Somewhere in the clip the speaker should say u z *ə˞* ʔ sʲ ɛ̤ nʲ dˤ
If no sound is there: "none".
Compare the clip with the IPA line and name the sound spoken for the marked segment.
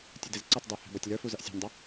ʌ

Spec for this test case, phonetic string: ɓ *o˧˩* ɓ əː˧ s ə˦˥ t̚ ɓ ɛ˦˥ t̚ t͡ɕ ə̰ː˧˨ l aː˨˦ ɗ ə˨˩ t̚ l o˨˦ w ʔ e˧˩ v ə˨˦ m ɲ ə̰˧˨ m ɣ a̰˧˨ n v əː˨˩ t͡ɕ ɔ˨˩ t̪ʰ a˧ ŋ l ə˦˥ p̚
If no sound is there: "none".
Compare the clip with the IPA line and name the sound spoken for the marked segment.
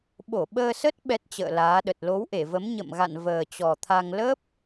o˧˩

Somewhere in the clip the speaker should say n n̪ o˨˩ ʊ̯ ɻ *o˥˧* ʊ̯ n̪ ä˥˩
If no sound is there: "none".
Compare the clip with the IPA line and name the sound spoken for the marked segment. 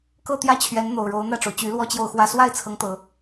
o˧˥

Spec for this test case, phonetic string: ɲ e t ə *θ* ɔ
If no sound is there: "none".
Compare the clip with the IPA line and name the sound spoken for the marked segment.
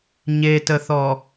θ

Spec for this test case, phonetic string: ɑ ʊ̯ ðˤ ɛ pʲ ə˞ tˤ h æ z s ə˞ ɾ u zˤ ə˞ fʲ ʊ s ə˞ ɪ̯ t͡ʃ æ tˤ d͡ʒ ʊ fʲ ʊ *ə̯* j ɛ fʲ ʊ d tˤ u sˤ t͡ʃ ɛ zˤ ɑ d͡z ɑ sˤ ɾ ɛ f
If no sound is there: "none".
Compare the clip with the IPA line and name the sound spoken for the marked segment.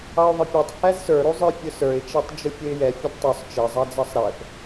ɪ̯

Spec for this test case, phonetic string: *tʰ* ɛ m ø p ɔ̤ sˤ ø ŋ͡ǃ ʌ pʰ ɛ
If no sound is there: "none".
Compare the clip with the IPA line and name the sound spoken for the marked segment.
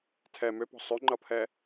tʰ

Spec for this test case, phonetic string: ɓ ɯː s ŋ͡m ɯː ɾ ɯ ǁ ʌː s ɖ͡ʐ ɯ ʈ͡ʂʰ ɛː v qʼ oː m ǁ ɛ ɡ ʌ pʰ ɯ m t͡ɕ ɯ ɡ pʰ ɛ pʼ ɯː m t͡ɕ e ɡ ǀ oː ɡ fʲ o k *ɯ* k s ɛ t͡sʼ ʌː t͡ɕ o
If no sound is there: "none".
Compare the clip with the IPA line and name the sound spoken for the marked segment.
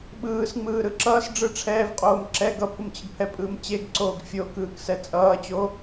ɯː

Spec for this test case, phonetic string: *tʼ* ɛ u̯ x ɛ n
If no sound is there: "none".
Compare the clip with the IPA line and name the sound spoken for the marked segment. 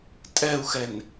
tʼ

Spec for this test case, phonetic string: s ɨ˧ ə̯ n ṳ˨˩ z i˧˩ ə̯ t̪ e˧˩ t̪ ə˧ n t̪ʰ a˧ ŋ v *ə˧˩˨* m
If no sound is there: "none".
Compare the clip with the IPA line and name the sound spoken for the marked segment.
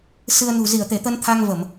ə˧˩˨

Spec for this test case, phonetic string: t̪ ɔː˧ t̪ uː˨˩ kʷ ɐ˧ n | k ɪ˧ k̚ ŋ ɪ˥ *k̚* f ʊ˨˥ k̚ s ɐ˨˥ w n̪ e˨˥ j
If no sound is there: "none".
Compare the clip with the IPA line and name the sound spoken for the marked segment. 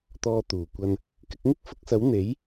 k̚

